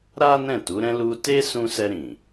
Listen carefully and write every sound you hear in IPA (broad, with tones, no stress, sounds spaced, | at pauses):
ɾ a˦ n ɛ̃˦˨ t u˨˦ ɾ ɛ̃˦ l u˧ t e˦ s ũ˧ s ɛ˧ ɾ ĩ˨